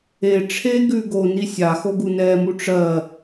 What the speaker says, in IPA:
e ʈ͡ʂʰ e ɡ ʉ ɡ o n i sʲ a x o ɡ u n ɛ m u ʈ͡ʂ ɜ

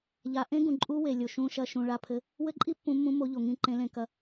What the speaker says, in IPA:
ʎ a˩ ʔ ẽ˦˥ ɡ ũ˩ ǃʼ u˦˥ w e˩ lʲ o˩ ʃ ũ˨˦ ʃ ɐ˨˦ ʃ ũ˩ ɭ a˨˦ pʰ ɘ˨˦ | w ɘ˦˥ ǃʼ i˦˥ pː ũ˨˦ mː ũ˨˦ m o˨˦ ʎ o˩ ŋ ĩ˨˦ ǃ ẽ˨˦ l ẽ˨˦ k ɐ˨˦

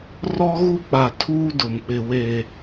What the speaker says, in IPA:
r ɔ˦ ɣ u˦ k͡p a˨ tʰ uː˦ d ʊ˨ m k͡p ɪ˨ w e˨

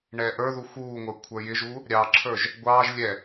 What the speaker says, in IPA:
ɳ ɛː ʔ ə˞ ð u x uː ŋʷ ə˞ kʷʰ ə˞ j ɪ ʒ u | ɾʲ ɑ ǁʰ ə˞ ʒ | ɡʷ ɑː ʒ lʲ ɛ

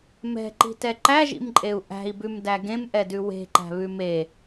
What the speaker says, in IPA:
m ɛ̤ ǃ i̤ t ɛ ǃ æ ʒ ḭ m ǃʼ e u̯ ʔ æ̤ i̯ b ʉ m d æ ɡ ẽ m ʔ ɛ d ʉ w e̤ ǃ æ̤ β ʉ m e

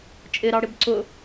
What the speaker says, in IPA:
t͡ʃʼ ɪ ɾ ɑ ɽ ɪ b ǀ ʊ

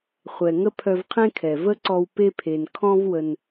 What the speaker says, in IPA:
χʷ ɛ˨ ŋ ə˦ pʰ œ˧ v qʰ ẽ˦ kʰ ɛ˨ v ə˦ ǀ ɔ˧ w p e˦ pʰ e˨ n kʰ ɔ̃˦ v w ə˧ n

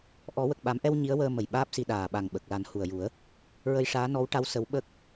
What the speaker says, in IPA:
ʔ ɔ˨˩˦ w ə˨˩ k̚ ɓ a˨˩˦ m ʔ ɛ˧ w ɲ i˧˥ ə̯ w əː˧ m ə˨˩ j ɓ aː˦˥ p̚ s i˧ ɗ aː˨˩ ɓ a˨˩ ŋ ɓ ə˨˩ k̚ l a˨˩˦ n h u˨˩ ə̯ j u˨˩˦ ə̯ | ɹ ə˧ j ʂ aː˧˥ n ɔ˧˥ w ʈ a˧˥ w s ə˧˥ w ɓ ə˦˥ k̚

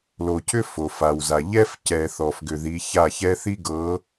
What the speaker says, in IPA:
l o˨ cʰ ʏ˦ f o˨ f a˨ w z a˨ ʎ ɛ˦ f c ɛ˨ θ ɔ˨ f ɡ ʏ˨ ð i˨˦ ç a˦˨ ç ɛ˦ θ i˦ ɡ ɤ˨˦

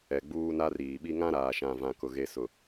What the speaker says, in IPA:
ɛ˨ ɡ͡b uː˦ n a˦ r iː˨ ɓ i˦ ŋ ã˦ ɾ aː˨ ʃ ã˨ v ã˨ k ʊ˨ ɣ e˨ s ʊ˨

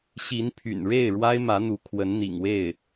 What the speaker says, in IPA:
ɕ i˧˥ n pʰ y̰˨˩ n ɻ e˥˩ ɪ̯ ɻ w a˥ ɪ̯ m ä˧˥ n̪ u˧˥ kʰ w ə˧˥ n n̪ ḭ˨˩ ŋ w e˥˩ ɪ̯

